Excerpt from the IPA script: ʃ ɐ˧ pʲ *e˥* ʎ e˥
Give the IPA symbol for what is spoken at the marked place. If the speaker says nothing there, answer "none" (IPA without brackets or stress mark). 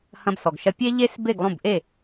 e˥